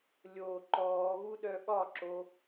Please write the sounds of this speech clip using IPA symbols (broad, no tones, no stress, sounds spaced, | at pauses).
lʲ o ǃ ɔː ɣ u ɗ œ ɠ ɒ ǁ o